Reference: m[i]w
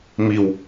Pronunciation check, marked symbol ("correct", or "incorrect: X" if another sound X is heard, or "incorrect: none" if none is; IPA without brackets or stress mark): correct